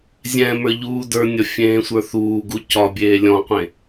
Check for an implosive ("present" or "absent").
absent